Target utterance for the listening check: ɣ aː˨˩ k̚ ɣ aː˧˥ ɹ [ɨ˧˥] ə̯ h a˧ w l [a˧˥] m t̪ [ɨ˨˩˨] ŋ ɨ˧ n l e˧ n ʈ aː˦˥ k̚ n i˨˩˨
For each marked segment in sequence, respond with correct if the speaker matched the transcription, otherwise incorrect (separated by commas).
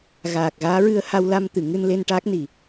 incorrect, incorrect, correct